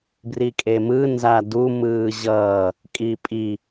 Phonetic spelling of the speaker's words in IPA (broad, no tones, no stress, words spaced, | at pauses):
brikʼemɯ nzadu mɯːʑʌː | kʼipʼi